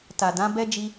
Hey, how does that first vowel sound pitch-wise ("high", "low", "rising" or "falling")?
low